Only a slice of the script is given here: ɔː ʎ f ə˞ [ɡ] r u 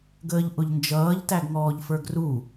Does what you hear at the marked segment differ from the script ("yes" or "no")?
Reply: no